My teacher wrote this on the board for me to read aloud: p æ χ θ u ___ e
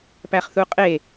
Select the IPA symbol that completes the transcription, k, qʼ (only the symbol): qʼ